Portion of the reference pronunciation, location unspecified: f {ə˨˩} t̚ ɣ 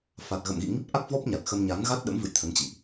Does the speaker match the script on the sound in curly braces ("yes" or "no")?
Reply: no